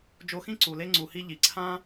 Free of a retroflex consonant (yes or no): yes